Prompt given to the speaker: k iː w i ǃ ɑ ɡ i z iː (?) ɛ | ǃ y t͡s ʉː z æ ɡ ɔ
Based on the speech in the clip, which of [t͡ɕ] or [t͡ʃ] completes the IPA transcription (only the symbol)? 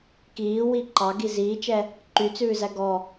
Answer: t͡ʃ